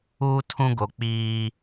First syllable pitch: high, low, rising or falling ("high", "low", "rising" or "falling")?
high